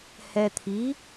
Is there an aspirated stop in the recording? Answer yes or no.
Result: yes